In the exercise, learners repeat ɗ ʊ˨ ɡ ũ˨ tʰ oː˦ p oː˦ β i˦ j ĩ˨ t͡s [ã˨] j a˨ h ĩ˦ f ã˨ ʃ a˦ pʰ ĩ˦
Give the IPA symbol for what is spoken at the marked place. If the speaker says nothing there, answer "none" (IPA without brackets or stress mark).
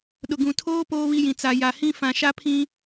a˨